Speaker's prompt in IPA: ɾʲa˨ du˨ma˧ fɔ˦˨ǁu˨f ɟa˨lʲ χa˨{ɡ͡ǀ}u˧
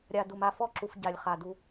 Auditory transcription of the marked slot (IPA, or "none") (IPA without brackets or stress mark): d